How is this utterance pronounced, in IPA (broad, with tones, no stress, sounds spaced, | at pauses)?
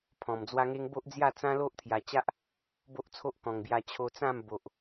pʰ ɔ̃˨˩ m d͡z w a˦ ŋ e˦ ŋ b o˦ ʔ d͡z j a˥˧ t͡s ã˦ l o˦ ʔ t̪ʰ j a˧ t͡ɕ a˦ ʔ | b o˦ ʔ t͡sʰ o˦ ʔ k ɔ̃˨˩ ŋ b j a˧ t͡ɕʰ o˧ t͡s ã˥˧ m b o˨ ʔ